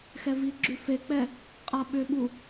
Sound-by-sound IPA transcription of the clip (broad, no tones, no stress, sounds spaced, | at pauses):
x ɛ v i ɡ͡ǁ ʉ f e k͡p ɛ | qʼ a ɓ ʏ ɓ u